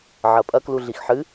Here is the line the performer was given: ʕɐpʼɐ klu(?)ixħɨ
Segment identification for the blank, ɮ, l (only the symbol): ɮ